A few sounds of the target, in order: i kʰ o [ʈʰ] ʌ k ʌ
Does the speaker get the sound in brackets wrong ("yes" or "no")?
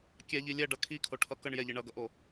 no